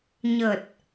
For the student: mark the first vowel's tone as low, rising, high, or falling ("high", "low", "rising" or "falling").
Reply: low